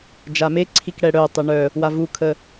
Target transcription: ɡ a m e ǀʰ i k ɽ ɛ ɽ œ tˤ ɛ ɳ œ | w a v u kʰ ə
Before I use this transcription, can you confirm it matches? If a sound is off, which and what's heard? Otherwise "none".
ɡ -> d͡ʒ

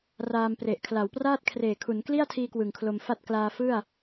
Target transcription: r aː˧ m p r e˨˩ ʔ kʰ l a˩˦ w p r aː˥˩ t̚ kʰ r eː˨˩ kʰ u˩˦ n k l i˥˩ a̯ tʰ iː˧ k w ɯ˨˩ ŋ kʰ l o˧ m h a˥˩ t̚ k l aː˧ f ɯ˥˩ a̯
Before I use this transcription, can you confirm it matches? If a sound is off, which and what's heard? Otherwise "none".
h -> f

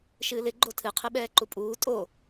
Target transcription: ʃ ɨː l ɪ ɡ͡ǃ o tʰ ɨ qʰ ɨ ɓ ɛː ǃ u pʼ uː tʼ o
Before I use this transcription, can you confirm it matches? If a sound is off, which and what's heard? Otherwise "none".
none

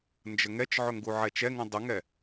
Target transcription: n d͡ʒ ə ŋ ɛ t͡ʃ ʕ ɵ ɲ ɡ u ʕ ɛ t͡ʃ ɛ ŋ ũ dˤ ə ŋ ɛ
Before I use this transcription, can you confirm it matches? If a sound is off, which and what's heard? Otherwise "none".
ɲ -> ŋ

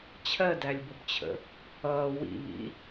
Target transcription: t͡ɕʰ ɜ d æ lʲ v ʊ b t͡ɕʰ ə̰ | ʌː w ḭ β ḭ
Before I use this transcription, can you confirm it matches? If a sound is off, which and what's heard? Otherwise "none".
v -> b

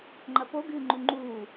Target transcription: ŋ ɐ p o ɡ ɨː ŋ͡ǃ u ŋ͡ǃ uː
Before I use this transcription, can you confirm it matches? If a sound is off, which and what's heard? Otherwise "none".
ŋ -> ŋ͡ǃ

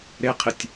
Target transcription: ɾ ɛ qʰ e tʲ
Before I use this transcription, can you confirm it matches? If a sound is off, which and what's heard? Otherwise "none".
ɛ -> e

